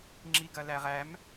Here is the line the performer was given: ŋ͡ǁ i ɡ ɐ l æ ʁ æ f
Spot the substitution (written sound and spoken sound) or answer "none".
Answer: f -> m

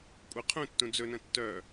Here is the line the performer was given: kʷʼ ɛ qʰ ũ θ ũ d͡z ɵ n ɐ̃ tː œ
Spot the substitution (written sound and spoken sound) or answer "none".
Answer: θ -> tː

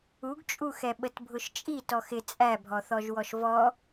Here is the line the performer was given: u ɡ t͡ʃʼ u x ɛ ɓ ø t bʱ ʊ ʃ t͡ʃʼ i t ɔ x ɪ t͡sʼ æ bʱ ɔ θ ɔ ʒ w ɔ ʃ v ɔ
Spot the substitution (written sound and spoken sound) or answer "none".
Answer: ø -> ə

